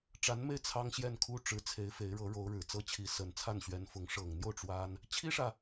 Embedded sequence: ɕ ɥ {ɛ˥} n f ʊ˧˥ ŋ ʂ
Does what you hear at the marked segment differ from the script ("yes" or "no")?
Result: yes